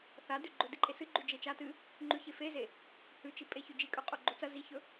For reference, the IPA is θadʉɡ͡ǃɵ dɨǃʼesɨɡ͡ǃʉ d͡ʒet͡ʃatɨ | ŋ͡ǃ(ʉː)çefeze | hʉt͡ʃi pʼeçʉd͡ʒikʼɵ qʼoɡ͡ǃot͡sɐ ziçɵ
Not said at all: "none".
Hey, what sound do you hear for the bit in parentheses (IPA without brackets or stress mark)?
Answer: ʉ